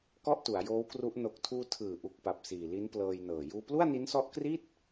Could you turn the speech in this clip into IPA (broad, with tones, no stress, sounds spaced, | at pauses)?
k ɔ˥˩ ʔ t u˩˦ a̯ j oː˦˥ w k r u˦˥ ʔ n o˨˩ k̚ tʰ uː˧ tʰ ɯː˨˩ ʔ u˨˩ k̚ p a˨˩ p̚ s iː˨˩ l i˦˥ n p l ɤː˧ j n ɤː˨˩ j uː˧ p l u˥˩ a̯ n i˦˥ n s ɔ˦˥ ʔ k r i˥˩ t̚